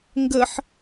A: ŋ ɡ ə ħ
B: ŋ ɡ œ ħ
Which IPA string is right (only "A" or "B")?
A